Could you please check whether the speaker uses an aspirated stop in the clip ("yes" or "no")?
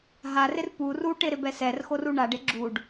no